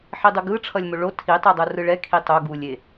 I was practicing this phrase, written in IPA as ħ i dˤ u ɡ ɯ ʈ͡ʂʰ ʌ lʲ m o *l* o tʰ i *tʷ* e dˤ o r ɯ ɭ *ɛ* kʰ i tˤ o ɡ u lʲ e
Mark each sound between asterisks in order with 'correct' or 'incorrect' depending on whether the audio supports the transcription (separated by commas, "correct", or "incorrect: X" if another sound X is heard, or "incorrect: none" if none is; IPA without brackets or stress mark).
incorrect: ɭ, incorrect: tˤ, correct